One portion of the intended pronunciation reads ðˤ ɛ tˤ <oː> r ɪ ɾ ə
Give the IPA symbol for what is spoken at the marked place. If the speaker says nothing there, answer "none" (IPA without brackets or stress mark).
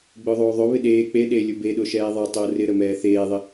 oː